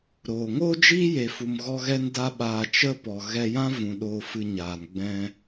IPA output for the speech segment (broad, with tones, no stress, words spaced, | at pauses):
ɾoː˨ ŋo˦d͡ʒiː˦je˨fu˨m ɣɔ˧ɣɛ˧nda˧ɓaː˨ t͡ʃə˦pɔ˨ ɣɛ˧jã˦vũ˨ ɗoː˧fɨ˧ɲaː˨n ɡ͡bɛ̃˧